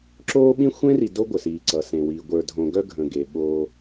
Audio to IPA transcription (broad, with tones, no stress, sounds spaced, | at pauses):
ǁ oː˦ ɓ ĩ˦ xʷ ẽ˦ r i˨ d o˦ ɡʷ ə˨ s iː˨ ǀ ʌ˨ s ẽ˨ w iː˨ ɡʷ ə˞˨ dʱ õ˨ ɡ œ˦ ɡʱ ə̃˨ ɡ e˨ ɓ oː˦